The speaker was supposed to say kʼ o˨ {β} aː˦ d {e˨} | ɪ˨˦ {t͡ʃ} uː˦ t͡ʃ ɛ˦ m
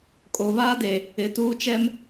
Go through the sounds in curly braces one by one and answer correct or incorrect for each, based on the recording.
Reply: correct, correct, incorrect: t

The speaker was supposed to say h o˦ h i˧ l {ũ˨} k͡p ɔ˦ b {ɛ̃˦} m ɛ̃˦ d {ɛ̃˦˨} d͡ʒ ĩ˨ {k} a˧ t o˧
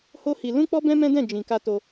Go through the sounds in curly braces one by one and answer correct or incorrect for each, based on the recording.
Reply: incorrect: ũ˦, correct, correct, correct

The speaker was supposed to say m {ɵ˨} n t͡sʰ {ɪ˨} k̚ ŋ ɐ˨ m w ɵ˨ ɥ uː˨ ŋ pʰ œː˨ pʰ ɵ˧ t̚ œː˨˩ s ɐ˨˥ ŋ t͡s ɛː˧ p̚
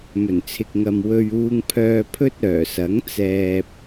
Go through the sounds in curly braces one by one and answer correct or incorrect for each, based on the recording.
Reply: incorrect: ɵ˨˩, correct

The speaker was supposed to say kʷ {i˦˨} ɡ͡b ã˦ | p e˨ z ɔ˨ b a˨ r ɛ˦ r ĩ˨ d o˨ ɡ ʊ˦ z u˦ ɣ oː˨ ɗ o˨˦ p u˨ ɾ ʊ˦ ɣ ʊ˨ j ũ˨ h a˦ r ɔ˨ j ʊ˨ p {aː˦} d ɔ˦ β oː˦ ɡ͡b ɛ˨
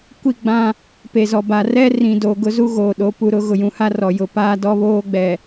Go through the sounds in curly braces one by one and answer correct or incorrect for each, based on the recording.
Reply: correct, correct

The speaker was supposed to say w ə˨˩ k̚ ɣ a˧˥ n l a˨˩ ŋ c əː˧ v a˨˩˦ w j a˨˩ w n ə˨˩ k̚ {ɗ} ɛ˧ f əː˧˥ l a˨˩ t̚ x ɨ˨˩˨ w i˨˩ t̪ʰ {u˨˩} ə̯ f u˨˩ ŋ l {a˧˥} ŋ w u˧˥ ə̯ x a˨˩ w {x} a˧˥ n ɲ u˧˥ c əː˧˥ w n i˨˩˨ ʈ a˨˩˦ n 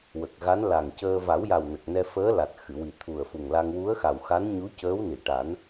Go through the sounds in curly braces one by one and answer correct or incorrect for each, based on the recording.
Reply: incorrect: n, correct, incorrect: a˧, correct

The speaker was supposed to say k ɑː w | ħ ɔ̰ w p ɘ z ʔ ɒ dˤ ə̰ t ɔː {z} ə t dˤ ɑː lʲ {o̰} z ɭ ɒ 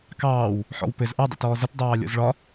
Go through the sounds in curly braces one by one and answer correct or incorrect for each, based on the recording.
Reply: correct, incorrect: ɔ̰

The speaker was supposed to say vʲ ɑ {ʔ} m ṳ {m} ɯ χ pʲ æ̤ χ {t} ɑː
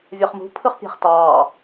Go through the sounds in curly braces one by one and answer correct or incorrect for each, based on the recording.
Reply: incorrect: χ, incorrect: pʰ, correct

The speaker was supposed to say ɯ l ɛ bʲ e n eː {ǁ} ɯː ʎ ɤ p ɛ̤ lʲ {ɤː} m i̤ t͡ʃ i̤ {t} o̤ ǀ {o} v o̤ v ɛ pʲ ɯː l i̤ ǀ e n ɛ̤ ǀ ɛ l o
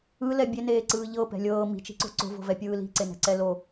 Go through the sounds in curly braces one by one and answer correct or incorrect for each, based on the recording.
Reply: incorrect: ǀ, correct, incorrect: ǀ, incorrect: o̤

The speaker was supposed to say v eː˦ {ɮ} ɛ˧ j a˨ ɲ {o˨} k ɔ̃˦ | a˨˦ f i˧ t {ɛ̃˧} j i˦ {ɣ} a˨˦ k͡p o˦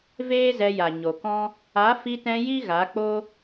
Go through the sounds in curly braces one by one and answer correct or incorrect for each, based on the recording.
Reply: incorrect: z, correct, correct, correct

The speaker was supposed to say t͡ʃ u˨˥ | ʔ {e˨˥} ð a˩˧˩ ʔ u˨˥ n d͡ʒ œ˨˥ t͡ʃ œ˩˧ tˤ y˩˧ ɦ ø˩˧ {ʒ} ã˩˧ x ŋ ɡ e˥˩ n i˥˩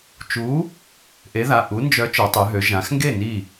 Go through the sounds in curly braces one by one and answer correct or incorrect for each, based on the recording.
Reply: correct, correct

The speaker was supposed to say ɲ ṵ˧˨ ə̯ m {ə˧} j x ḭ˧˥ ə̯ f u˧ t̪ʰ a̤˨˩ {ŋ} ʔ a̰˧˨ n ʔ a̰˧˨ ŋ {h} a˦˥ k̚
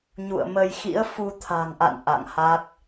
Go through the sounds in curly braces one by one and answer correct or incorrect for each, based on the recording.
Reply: correct, correct, correct

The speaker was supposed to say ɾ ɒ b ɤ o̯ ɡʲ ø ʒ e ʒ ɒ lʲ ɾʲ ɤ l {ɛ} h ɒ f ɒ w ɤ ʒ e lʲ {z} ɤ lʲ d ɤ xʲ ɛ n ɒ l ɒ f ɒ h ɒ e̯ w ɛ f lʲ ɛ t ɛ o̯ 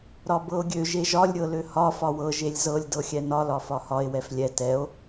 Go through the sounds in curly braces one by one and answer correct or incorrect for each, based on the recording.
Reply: incorrect: ø, correct

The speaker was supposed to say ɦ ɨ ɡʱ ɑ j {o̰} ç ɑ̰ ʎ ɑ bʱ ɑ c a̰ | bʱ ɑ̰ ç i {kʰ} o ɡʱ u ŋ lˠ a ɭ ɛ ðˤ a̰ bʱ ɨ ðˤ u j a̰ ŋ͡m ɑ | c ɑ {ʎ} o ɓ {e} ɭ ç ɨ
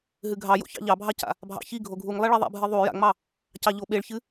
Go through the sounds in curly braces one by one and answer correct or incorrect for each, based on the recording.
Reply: correct, incorrect: ɡʱ, correct, correct

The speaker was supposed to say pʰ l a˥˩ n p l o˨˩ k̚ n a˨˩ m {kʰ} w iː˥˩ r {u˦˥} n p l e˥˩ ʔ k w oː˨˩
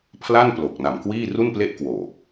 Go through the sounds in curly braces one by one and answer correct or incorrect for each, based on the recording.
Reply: incorrect: k, incorrect: u˥˩

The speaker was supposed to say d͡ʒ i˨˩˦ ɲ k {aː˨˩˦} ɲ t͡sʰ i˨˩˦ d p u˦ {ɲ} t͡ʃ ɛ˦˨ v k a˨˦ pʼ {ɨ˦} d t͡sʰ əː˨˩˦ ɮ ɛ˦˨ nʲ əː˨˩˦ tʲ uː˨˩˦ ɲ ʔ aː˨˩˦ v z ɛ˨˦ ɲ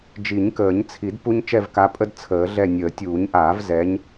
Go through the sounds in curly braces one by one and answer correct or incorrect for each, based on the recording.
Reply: incorrect: əː˨˩˦, correct, incorrect: ə˦

